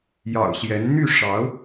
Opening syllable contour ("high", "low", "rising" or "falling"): low